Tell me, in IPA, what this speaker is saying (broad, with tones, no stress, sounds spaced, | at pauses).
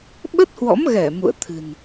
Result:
ɓ ə˦˥ t̚ h w ɔ̰˧˥ m ɣ ɛ˧˩ m ṵ˧˨ ə̯ t̪ʰ ɨ̤˨˩ n